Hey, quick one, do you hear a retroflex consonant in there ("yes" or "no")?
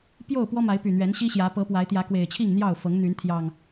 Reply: no